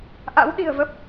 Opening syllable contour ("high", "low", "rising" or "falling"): rising